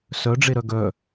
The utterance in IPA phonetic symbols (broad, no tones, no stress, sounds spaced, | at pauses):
s œ ɖ͡ʐ e ɾ œ ɡ œ